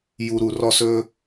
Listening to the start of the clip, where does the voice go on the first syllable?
low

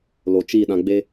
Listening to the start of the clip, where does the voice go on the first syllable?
low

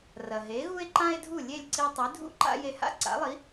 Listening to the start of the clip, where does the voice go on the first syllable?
low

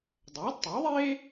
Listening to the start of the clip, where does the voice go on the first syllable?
rising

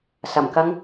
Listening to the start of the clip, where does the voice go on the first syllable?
low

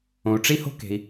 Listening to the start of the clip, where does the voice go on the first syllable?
low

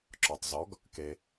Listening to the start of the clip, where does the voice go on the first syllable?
low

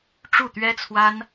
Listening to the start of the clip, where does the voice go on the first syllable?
falling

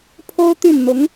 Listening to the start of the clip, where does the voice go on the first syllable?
high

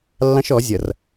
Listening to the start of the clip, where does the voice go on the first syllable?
high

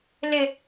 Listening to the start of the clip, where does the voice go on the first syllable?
low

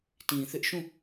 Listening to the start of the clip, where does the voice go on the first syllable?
low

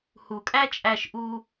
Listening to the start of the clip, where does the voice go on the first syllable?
low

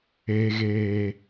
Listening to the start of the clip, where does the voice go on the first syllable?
low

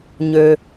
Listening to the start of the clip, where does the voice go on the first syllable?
low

